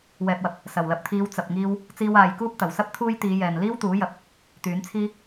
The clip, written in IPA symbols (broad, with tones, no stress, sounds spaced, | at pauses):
w ɛː˨ p̚ w ɐ˨˥ p̚ | s ɐ˨˩ w l ɐ˨ p̚ t̪ʰ iː˨˧ w t͡s ɐ˨ p̚ ŋ iː˧ w | t͡s iː˧ w aː˨ j k uː˥ p̚ t̪ ɐ˨˩ w s ɐ˥ p̚ t̪ʰ uː˥ j t̪ iː˨˧ j ɛː˨ n l iː˥ w t̪ uː˨˥ j ɐ˨˥ p̚ | t̪ yː˨˥ n t͡sʰ iː˥